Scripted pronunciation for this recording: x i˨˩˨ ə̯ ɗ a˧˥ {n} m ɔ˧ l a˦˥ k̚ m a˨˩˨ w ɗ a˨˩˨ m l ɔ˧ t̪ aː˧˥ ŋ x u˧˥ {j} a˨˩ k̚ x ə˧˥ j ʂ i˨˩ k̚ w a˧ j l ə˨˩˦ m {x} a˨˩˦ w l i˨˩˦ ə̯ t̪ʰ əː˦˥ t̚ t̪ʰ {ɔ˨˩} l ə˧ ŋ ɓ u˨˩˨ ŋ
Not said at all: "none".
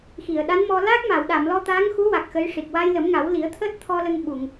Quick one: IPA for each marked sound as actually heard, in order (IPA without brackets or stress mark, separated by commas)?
n, w, ŋ, ɔ˧